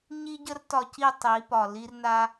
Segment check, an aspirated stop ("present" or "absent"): absent